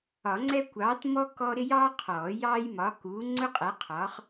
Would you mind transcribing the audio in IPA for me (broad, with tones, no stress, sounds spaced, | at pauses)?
ɒ˨˩˦ ŋ͡ǀ ɛ˥ kʷ ɑː˨˥ t m ɔ˥ k ɔ˥ ɾ ɪ˥ j ɑː˥ qʰ ɔː˨˩˦ j ɑː˥ j m ɒ˨˥ k uː˨˥ ŋ͡ǀ ʊ˥ qʼ æ˨˥ qʰ ɒ˨˥ χ